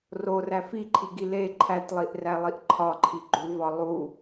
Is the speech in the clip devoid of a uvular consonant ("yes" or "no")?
yes